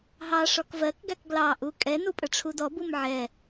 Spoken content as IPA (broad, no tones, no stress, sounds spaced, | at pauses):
ɦ ɑ ʂ ɔ k v ɜ k ɡ æ k ɡ l ɑ ʔ u kʼ ɛ n u pʼ ə ʈ͡ʂʰ u d ɔ b u m ʕ ɛ